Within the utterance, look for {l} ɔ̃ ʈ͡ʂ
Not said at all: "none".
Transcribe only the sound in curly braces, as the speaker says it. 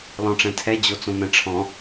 l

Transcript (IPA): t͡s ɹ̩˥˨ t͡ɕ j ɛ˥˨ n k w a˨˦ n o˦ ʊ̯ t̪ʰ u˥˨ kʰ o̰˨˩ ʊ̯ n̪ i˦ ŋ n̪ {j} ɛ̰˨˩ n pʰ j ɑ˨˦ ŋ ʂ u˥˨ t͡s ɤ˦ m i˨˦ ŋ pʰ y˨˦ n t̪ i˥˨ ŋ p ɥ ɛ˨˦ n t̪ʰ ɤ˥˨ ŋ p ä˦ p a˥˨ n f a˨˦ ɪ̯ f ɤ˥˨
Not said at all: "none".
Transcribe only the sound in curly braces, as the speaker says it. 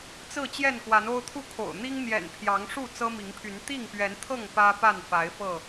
j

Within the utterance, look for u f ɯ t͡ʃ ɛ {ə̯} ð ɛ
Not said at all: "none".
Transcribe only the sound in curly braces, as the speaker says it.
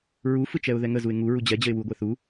ʊ̯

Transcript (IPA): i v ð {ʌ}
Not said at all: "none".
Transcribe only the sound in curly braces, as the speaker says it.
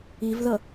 ʌ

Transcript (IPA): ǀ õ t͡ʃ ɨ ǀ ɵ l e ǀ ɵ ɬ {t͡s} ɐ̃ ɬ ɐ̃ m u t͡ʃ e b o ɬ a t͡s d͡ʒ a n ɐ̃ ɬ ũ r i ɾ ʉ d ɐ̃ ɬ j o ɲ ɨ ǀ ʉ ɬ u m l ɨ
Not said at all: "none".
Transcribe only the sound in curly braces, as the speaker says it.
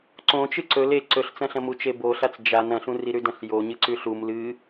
t͡s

